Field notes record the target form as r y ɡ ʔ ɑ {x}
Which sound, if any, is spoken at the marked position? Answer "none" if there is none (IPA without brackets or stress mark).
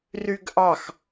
x